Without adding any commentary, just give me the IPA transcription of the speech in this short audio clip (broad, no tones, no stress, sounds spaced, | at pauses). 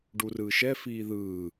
ɖ u r ɯː ʃ ɛ f iː ð ɯː